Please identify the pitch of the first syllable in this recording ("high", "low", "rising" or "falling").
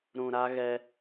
low